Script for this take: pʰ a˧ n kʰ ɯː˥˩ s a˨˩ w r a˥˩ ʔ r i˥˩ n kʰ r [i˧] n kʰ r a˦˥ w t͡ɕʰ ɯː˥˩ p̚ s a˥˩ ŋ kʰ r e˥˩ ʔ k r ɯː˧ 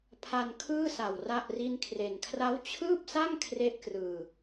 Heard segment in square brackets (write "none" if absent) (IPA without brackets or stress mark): e˧